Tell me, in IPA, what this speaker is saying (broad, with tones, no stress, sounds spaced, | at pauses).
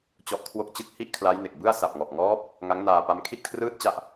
t͡ɕ ɔ˦˥ ʔ kʰ w o˥˩ k̚ t͡ɕ ɯ˥˩ k̚ h i˥˩ ʔ kʰ l a˦˥ j n e˨˩ k̚ b ɯ˥˩ a̯ s a˨˩ p̚ ŋ ɔ˨˩ ʔ ŋ ɔː˦˥ p̚ | ŋ a˦˥ ŋ n aː˧ p a˦˥ m kʰ i˥˩ t̚ kʰ r ɯː˥˩ t̚ t͡ɕ a˥˩ ʔ